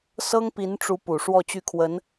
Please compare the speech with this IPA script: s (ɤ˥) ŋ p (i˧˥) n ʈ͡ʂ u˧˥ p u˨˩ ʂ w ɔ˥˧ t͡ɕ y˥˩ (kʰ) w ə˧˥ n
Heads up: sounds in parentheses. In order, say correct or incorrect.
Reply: correct, correct, correct

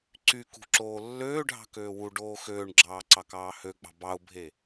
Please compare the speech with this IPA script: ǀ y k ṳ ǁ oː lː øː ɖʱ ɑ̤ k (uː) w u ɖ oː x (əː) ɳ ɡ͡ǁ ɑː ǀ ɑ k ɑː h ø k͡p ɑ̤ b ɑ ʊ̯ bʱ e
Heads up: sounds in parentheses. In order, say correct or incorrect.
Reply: incorrect: øː, incorrect: øː

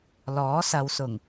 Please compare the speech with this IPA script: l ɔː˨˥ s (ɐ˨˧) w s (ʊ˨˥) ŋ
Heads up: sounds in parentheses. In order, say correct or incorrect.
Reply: correct, incorrect: ʊ˨˩

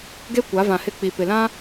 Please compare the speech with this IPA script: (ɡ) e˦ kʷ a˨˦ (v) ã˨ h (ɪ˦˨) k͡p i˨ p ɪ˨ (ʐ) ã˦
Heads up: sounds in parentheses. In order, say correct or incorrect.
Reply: correct, correct, correct, incorrect: l

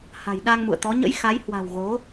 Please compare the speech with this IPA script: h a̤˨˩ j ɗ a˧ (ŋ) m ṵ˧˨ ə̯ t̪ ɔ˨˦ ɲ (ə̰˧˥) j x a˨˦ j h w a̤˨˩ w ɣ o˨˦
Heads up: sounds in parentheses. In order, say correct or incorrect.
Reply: correct, correct

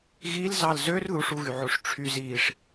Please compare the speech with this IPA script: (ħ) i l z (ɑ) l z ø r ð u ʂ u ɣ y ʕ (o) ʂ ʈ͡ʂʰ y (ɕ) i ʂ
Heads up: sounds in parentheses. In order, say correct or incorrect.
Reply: incorrect: ɣ, correct, correct, incorrect: z

